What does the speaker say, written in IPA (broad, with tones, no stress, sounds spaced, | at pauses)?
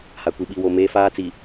h a˨ kʷ i˨ ɓ i˦˨ w o˦˨ m eː˦ f aː˦ t͡s i˨